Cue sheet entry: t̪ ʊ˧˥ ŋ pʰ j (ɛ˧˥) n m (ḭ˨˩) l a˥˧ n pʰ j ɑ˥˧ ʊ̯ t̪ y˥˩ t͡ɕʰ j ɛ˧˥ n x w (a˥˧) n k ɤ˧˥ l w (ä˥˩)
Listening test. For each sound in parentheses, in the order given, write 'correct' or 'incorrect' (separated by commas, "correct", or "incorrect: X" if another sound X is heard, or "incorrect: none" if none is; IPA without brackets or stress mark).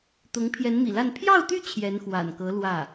correct, correct, incorrect: a̰˨˩, correct